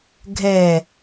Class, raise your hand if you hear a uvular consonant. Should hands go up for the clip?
no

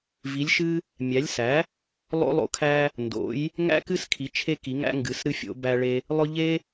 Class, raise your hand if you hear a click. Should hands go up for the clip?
no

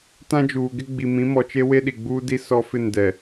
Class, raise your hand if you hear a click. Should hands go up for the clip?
no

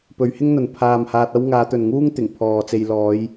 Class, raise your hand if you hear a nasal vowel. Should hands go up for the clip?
no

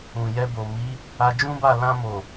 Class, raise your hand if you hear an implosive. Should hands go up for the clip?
no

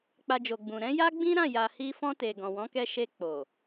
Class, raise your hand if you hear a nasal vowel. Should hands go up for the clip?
yes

